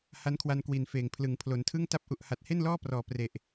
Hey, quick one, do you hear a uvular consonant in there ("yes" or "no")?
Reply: no